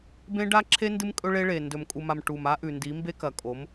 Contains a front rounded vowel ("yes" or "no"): no